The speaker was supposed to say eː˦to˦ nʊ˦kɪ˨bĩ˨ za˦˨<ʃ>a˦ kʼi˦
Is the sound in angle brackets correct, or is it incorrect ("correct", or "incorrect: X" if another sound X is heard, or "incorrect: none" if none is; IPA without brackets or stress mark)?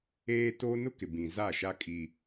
correct